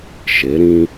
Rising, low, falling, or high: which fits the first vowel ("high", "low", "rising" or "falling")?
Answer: rising